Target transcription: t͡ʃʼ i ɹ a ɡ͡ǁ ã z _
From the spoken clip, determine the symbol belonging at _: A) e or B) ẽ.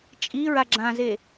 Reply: A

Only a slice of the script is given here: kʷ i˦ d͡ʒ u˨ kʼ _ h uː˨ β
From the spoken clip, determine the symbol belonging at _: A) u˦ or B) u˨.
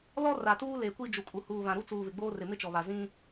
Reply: B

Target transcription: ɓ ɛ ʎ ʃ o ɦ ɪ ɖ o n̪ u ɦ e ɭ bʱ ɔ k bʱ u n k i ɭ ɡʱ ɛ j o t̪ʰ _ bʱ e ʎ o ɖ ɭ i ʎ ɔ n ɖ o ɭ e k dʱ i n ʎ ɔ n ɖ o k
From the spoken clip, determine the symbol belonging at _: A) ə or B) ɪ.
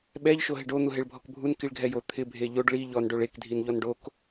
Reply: B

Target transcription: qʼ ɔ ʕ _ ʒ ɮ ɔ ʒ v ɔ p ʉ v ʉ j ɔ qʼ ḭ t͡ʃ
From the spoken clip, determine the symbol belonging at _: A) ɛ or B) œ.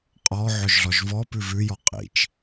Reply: B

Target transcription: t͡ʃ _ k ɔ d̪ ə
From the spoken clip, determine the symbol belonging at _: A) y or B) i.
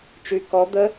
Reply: A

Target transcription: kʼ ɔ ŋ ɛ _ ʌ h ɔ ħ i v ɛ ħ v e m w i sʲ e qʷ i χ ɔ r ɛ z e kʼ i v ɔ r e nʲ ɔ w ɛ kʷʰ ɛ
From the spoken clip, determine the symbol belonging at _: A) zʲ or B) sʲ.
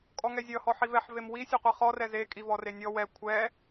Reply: A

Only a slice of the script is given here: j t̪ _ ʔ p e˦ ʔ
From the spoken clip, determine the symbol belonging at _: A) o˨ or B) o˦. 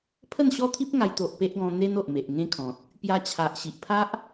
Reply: A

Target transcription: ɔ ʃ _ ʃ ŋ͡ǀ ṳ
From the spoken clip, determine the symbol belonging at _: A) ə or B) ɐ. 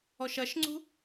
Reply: B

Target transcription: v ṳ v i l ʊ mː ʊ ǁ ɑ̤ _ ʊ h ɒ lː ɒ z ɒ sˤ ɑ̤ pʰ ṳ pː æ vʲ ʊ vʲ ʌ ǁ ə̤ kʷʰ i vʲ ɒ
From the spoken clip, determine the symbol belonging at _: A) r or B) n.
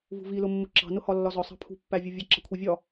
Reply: B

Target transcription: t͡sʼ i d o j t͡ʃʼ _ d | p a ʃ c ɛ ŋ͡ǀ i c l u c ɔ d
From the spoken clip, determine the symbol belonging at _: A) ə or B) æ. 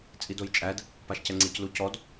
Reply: B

